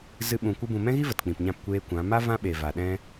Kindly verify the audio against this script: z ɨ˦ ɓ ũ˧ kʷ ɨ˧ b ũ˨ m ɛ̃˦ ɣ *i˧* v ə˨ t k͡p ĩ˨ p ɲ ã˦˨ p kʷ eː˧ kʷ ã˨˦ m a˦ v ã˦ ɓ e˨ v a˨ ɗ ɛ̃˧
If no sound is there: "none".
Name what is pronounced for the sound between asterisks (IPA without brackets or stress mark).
i˦